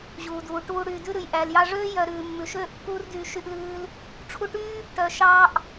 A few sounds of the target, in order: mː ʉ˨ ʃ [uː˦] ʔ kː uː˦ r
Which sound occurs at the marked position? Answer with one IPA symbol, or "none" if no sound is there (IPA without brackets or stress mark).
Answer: øː˦